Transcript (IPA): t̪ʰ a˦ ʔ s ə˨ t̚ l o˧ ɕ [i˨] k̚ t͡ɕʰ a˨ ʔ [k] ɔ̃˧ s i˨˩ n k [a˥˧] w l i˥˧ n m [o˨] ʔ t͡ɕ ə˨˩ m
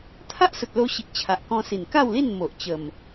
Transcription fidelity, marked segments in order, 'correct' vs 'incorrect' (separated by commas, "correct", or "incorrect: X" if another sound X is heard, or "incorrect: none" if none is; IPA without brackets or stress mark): correct, correct, correct, correct